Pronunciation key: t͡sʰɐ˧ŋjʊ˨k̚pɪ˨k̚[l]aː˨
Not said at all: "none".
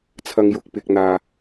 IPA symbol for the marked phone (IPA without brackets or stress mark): n̪